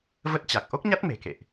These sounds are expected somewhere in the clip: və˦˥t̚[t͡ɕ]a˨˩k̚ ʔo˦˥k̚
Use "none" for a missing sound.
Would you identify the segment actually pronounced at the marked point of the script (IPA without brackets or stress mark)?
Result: t͡ɕ